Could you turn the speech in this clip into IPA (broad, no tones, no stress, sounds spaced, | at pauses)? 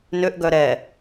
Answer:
n ø ʔ ɡ œ ɾ ɛ